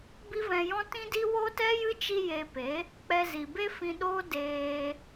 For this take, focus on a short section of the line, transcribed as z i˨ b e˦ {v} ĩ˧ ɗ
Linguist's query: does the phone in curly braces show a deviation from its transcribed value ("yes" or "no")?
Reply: yes